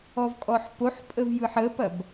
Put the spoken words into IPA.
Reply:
ɔvkʼɔħpoħpʼəv jɯħəpɐb

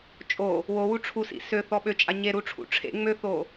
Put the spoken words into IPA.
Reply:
t͡ʃʼo | wowu ʈ͡ʂʰusḭ søθɔ ɓøt͡ʃʼa ɲeɾuʈ͡ʂʰṵ ʈ͡ʂʰḛ ŋ͡møθo

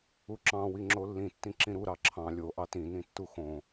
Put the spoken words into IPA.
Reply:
uǁɑ̃ wiŋ͡ǁolːĩ tːĩǁĩɾu ɾɑǁʰɑ̃ lʲo ʔɑtĩ nĩtːuxõ

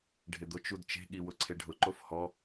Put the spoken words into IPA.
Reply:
ɖʱɪd̪ʊt͡ʃ udt͡ʃe̤ɠi wʊǀʰeɖʱʊǃof hɔ

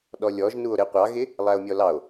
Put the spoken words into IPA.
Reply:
ɗɔlʲɔʒ nuo̯ɾɪ qʷɑɣɪ | lˠæo̯mʲɔlɑo̯

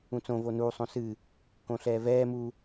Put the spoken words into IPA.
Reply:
ũt͡sõ vonu sˤõsɨ | kõɬɛːvɛː mu

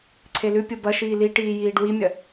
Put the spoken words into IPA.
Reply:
ǀʰelʉ pʲobɐ ʃiːliʈiːjiːɖ wimʲɐ

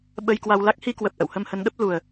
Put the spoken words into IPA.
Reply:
ɓə˧jkwa˧w la˦˥k̚hi˧kwə˨˩p̚ ʔə̰˧˨whə˧mhə˨˦nɗə˦˥p̚ lu˨˩ə̯

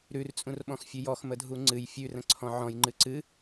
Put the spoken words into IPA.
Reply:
ɾʉrt͡sʼũrɓɔ̃xfʲʉ jɔxmədʱu ŋ͡ǀɨj fʲʉrə̃ǀʰɔ̃ ʕɔ̃jŋ͡ǃɨ ǀɨ

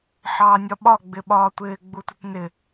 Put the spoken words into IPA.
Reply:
ħɑːnʲɒɓɒ ɡ͡bɪɓɒːtʷɪː ɡ͡butʷɪtnɪ

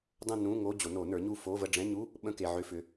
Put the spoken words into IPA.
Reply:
dˤə̃˥˧nũ˧˥˧ŋo˧˥˧ d͡ʑo˨˩˦no˨˩˦nə˞˩˥ɲu˥˩ fo˧˥˧və˥˩ ɖ͡ʐɛ̃˧˥˧ɲu˧˥˧ | ɓə̃˥˧ke˨ʕʏ˧˥˧fʏ˩˥

